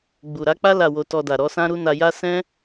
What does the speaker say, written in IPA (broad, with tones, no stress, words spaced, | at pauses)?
ɡ͡bu˨ɾa˨˦k͡pa˦ la˦˨wo˧tɔ˧da˨ ɾɔ˨˦sã˦ɾu˦ na˧ja˦ sɛ̃˦